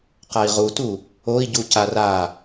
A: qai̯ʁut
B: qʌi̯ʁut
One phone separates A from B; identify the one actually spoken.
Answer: A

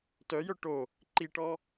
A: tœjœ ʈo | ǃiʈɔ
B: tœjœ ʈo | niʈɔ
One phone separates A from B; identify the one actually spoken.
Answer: A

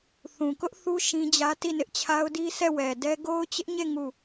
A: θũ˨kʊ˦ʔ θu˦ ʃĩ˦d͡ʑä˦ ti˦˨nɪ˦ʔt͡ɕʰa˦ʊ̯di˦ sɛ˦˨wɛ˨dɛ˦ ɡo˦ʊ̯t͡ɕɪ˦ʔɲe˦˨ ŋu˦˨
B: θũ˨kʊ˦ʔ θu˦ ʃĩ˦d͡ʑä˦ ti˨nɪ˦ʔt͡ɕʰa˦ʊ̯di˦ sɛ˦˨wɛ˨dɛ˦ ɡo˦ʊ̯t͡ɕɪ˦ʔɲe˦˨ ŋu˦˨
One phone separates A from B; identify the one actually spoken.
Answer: A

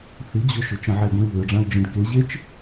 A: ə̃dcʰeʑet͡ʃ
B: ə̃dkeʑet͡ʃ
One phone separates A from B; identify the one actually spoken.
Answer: B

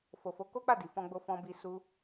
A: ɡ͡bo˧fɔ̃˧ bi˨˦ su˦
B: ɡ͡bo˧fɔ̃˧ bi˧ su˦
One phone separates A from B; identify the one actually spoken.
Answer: B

